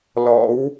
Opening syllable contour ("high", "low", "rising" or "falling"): rising